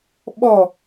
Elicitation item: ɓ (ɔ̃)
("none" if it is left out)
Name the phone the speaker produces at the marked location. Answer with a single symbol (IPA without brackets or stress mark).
ɔ